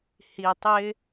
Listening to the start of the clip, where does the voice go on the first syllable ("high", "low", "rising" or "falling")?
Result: low